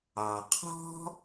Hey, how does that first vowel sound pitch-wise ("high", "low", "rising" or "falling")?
low